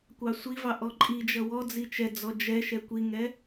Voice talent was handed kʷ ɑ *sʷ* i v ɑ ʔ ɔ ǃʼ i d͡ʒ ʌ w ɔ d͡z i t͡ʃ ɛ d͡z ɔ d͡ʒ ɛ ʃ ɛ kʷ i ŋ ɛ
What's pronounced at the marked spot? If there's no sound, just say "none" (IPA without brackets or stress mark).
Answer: sʷ